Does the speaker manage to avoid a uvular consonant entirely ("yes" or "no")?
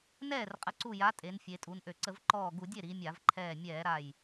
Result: no